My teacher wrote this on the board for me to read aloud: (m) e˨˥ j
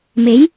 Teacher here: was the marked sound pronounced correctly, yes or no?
yes